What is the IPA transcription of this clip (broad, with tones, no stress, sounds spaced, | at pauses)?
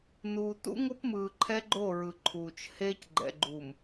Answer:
n uː˨ t ṵ˦ ŋ o˦ p m ɯː˨ ǃʰ ɛ˦ ɡ͡ǃ o˦˨ ɹ ɯ˨ ǃʰ uː˨ t͡ʃ h eː˦ c ɡ͡ǃ ɛ̰˨ ɡ͡ǃ uː˨ m